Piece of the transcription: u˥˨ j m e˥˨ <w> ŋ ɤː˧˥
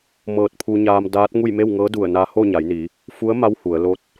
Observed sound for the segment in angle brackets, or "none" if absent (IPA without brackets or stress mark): w